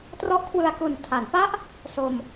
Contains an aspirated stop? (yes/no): yes